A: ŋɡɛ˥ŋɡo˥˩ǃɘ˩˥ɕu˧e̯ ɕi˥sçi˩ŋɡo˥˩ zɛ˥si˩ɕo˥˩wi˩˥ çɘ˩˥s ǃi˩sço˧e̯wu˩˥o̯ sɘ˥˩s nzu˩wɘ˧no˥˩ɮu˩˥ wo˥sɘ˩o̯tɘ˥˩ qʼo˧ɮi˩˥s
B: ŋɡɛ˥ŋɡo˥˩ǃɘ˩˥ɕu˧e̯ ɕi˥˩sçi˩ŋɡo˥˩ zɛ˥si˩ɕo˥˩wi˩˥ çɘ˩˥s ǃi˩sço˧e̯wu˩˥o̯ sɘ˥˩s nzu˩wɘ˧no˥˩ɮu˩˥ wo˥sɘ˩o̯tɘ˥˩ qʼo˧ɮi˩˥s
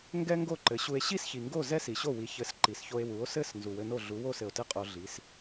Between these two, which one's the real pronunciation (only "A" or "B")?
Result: A